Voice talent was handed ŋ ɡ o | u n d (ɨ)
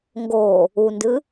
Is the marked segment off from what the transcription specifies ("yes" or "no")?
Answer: no